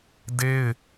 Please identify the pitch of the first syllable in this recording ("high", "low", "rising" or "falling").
high